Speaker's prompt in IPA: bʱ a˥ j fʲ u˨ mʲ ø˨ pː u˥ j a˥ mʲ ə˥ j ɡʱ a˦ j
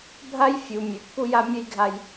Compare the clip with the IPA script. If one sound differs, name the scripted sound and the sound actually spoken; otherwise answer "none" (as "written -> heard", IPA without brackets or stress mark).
none